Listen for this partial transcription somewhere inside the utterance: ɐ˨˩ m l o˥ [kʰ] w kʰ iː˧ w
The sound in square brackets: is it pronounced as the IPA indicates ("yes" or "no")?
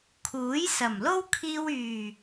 no